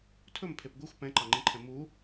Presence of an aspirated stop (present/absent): present